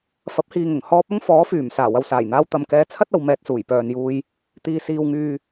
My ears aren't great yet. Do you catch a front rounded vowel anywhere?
yes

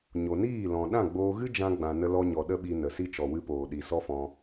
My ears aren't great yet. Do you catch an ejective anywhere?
no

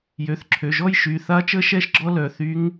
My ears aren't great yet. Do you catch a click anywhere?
yes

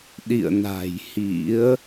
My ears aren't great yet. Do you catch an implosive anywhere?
yes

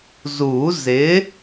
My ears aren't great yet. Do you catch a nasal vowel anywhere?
no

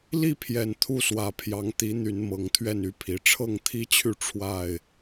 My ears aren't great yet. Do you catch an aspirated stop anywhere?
yes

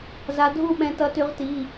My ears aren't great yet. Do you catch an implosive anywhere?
yes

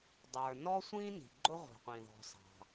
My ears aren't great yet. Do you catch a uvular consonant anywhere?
yes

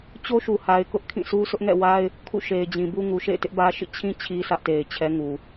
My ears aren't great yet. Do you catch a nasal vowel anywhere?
yes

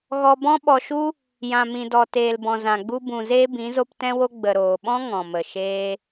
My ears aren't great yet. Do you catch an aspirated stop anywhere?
no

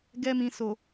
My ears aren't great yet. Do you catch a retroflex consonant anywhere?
no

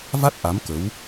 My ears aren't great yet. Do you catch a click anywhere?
no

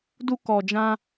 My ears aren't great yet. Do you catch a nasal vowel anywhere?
yes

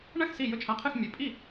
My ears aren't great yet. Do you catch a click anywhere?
no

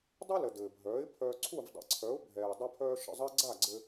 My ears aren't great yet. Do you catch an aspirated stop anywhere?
yes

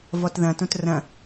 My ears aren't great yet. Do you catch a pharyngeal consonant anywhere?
no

